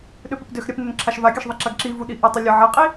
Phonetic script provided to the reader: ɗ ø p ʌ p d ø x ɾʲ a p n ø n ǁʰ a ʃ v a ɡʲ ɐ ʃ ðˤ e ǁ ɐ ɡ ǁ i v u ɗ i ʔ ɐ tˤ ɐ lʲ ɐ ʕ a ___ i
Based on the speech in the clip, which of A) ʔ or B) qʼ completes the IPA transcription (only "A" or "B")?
B